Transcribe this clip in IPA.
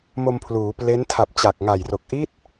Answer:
m o˧ m pʰ l uː˩˦ p l e˦˥ n tʰ a˨˩ p̚ t͡ɕ a˨˩ k̚ ŋ a˨˩ j r o˨˩ k̚ ʔ i˦˥ t̚

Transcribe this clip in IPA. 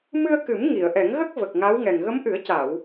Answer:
m ɨ˧ ə̯ k ɨ˨˩˦ m ŋ i˨˩˨ ə̯ ʔ ɛ˨˩˦ ŋ ɣ ə˦˥ k̚ v ə˨˩ k̚ ŋ a˧˥ w ŋ ɛ˨˩ ŋ ɣ ə˧˥ m ʔ ɨ˨˩˦ ə̯ c a˨˩˨ w

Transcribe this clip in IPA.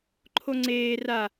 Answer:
ǃʰ o ŋ͡ǀ eː r a

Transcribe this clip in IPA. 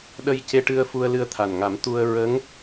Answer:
ɗ ə˧ j c e˧ ʈ ɨ˧ ə̯ f u˧ ə̯ l ɨ˧ ə̯ t̪ʰ a˨˩ n ŋ a˨˩˦ m t̪ u˧ ə̯ ɹ ə˧˥ ŋ

